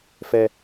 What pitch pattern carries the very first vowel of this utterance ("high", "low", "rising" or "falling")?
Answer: high